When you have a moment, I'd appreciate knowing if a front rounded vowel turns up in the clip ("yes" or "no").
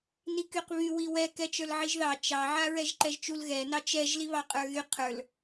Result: yes